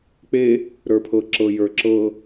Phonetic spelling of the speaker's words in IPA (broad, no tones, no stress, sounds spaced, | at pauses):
k͡p e | ɾ ə˞ pʰ ɤ ǁ ɤ j ə˞ ǁ ɤ